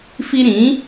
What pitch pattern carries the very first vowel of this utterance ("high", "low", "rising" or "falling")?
high